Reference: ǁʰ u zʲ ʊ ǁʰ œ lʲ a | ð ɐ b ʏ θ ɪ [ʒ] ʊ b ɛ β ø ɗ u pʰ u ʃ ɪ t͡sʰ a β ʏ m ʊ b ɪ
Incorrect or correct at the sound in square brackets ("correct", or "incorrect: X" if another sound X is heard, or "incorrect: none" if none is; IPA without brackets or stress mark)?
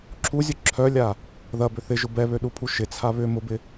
correct